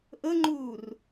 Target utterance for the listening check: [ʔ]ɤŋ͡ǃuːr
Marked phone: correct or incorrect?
correct